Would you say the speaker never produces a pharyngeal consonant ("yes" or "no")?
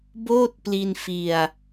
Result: yes